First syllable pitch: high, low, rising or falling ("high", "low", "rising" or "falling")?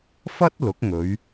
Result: high